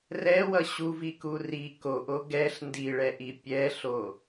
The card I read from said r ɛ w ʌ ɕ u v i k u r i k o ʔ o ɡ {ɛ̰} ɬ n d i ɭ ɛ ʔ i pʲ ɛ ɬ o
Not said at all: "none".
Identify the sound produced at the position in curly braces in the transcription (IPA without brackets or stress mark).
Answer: ɛ